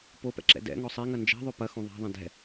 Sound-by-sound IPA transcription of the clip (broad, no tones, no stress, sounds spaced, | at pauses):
p o p ɛ̰ ǁ ɛ̰ d ɛ̰ ŋ ɔ sˤ e ŋ ɐ n d͡ʒ ɛ̤ ðˤ ø p ɐ x õ ðˤ a̤ ðˤ ɐ̃ d ɛ̤